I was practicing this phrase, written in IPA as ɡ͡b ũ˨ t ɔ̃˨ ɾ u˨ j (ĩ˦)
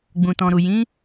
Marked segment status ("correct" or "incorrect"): incorrect